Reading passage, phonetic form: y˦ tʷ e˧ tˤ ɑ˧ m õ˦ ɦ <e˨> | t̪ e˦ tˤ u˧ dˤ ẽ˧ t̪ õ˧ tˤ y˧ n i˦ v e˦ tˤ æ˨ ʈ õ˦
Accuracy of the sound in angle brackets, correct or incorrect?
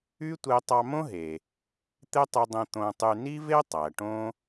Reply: correct